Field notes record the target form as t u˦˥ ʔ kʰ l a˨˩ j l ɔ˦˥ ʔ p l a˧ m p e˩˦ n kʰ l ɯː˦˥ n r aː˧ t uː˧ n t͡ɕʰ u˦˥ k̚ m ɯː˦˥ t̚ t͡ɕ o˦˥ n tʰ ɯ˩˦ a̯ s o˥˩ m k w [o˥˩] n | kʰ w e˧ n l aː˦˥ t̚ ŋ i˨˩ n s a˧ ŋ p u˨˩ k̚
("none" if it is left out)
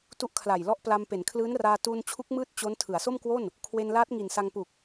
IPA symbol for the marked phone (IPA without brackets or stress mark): o˥˩